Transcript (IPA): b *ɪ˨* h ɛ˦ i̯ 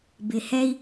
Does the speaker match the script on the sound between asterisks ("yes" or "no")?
yes